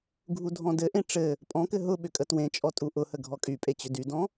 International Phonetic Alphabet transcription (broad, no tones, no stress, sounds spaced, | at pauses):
ɡʱ u dʱ ɔ̃ d ɘ ʔ ẽ ʈ͡ʂ ɘ | pʼ ɔ̃ k ɘ ɦ ʊ ɓ ʏ kʼ ə t w ẽ t͡ʃʼ ɔ tʼ u ʔ ʊ h ə ɡʱ ɔ kʼ y pʼ e t͡ɕ ʏ d y d ɔ̃